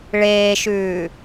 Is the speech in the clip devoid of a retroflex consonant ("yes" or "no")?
no